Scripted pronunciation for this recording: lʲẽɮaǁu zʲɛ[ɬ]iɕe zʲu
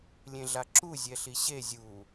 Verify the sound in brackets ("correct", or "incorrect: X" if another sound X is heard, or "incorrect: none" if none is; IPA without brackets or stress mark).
correct